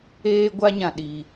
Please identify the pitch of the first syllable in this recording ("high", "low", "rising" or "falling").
high